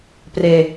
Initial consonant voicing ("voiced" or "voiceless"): voiceless